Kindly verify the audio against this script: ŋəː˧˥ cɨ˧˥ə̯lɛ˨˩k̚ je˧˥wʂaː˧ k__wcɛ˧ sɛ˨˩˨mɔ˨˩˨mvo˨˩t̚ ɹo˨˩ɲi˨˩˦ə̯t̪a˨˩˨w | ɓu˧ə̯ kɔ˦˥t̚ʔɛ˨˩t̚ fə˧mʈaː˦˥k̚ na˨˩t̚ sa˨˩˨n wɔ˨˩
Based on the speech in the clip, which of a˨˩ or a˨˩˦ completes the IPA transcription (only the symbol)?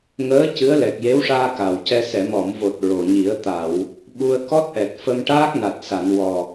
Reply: a˨˩